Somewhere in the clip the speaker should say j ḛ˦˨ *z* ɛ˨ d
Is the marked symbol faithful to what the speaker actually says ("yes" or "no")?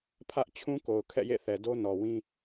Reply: no